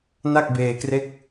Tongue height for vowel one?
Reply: low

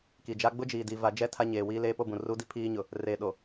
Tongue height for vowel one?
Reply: high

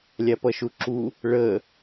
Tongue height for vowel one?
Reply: low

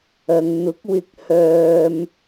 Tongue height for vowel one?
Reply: low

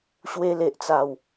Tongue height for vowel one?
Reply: mid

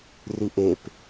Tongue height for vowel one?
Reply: high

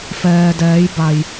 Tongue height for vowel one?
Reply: mid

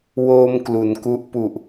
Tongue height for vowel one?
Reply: mid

